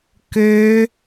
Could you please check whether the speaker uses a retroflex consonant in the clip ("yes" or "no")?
no